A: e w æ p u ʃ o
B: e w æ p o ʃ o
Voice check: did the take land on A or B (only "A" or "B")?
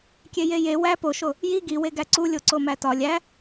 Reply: B